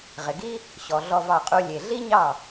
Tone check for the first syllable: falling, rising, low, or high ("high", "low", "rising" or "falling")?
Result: low